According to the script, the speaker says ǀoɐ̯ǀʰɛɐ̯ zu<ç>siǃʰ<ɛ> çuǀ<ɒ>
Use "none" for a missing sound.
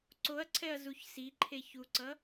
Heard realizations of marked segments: ç, e, ʌ

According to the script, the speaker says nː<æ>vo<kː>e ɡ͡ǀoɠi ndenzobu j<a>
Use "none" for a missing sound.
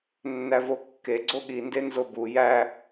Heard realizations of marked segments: æ, kː, æ

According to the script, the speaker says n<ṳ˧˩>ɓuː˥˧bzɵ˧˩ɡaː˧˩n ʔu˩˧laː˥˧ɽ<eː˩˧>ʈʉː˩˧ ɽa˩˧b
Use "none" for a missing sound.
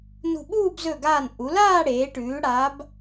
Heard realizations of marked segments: ṳ˧˩, eː˩˧

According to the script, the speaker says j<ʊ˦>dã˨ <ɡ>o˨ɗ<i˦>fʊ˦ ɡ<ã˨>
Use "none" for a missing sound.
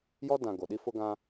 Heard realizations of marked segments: ɔ˦, ɡ, i˦, ã˦

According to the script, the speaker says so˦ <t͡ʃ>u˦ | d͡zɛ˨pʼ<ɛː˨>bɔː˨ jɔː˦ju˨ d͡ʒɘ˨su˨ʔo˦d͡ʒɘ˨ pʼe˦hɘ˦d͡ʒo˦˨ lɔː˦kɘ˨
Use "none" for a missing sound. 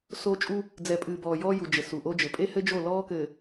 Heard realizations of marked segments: t͡ʃʼ, ɨː˨

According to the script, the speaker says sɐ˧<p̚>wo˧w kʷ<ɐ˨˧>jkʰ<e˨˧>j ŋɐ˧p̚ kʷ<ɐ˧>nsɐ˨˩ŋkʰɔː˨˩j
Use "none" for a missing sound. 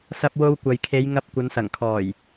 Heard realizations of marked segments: p̚, ɐ˨, e˨˧, ɐ˨˧

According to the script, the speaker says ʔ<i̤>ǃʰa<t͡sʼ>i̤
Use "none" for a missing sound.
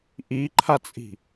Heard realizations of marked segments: i, t͡sʼ

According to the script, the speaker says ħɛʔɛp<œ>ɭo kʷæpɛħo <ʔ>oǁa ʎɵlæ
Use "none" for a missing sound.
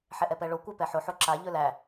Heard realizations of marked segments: ɛ, ħ

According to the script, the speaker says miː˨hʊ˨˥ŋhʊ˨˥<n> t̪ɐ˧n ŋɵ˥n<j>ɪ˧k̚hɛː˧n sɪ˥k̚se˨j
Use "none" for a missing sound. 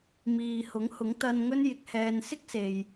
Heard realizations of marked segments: ŋ, j

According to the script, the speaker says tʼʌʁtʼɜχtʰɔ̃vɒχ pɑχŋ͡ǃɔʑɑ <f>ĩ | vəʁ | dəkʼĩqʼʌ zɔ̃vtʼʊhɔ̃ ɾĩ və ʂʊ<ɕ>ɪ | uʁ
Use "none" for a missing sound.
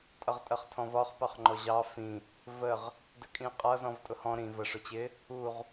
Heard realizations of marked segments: f, t͡ɕ

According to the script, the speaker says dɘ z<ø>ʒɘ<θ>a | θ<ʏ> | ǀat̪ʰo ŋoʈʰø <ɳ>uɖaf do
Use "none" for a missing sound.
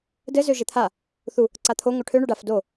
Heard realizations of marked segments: ø, t̪ʰ, u, ɳ

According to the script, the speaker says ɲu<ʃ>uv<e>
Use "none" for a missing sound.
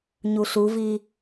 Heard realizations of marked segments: ɬ, i

